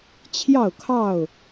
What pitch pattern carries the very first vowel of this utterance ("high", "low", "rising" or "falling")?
falling